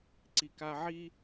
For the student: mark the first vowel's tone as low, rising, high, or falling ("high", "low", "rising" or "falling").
low